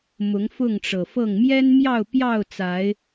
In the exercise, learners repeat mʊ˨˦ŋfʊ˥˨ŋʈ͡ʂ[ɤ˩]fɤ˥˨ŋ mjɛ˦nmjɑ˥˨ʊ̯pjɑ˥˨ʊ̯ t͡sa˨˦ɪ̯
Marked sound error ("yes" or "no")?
no